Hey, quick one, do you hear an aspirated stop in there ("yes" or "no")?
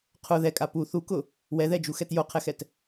yes